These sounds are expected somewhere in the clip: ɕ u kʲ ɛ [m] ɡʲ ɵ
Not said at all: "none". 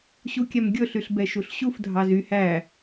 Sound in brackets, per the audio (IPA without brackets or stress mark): m